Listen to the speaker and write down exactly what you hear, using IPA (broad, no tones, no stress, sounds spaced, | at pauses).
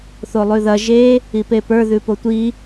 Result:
θ o lˠ ʉ ð ɐ ʒ e | i p e p ə˞ ð ʉ p o tʷ i